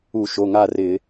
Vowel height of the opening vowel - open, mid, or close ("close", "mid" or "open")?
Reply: close